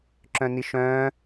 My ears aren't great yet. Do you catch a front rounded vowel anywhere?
yes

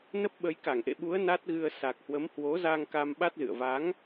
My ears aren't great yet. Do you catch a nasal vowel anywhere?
no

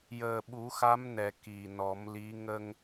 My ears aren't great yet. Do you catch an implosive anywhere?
yes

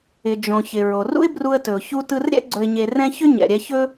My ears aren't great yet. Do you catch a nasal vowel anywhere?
yes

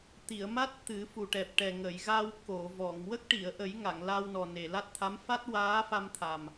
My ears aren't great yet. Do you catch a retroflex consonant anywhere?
yes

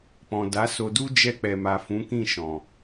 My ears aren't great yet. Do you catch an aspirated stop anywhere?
no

